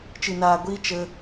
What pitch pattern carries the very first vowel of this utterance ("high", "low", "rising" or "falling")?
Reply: low